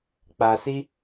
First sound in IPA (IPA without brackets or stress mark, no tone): k͡p